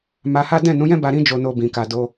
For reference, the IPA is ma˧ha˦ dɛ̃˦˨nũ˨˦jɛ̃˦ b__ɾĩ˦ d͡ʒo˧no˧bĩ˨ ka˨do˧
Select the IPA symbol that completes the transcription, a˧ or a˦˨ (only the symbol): a˧